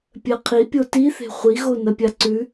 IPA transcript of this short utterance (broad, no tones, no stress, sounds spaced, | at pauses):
pʲ ɜ qʰ i pʲ o t i θ e̤ χʷ i ɣ o n ɐ pʲ a ǀ ʉ